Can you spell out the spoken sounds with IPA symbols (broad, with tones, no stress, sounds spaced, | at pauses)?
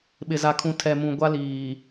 ɓ ɪ˨ z a˨ kʰ ũ˨ tʰ ɛ˨ m ũ˨ ɡʷ a˦ l iː˨